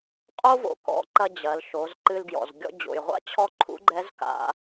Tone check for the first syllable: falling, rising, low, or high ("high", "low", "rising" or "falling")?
high